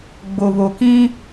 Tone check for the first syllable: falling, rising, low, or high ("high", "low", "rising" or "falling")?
low